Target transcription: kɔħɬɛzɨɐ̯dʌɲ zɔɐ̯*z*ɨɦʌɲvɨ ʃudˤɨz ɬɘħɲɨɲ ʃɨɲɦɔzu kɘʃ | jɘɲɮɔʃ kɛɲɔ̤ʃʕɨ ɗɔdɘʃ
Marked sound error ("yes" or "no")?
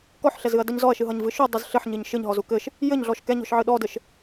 yes